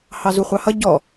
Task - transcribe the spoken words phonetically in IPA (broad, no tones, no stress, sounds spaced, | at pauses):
h ɑ z u χʷ ɑ h ʌ ɟ ɔ